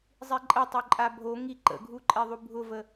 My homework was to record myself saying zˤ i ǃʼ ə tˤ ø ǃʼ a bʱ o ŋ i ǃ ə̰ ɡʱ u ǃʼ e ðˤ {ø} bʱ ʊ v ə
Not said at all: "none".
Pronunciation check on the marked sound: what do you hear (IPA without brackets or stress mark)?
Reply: u